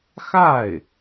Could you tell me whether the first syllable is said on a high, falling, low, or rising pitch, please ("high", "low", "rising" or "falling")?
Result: falling